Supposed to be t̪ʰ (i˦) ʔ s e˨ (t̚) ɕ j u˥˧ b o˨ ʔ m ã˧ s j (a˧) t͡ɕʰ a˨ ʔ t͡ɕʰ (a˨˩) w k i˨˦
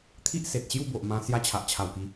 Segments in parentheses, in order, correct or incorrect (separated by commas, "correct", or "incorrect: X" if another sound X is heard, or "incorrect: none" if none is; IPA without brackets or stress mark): correct, correct, correct, correct